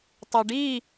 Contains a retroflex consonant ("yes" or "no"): yes